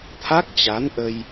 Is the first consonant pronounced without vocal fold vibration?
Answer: yes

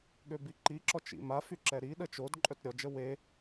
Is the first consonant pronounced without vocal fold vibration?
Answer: no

